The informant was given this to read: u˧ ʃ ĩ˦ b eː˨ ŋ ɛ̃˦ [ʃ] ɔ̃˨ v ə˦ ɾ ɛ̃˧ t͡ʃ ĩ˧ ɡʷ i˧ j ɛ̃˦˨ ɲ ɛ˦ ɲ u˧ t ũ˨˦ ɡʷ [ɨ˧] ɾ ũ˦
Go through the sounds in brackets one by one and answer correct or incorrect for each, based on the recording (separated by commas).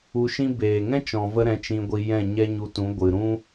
incorrect, incorrect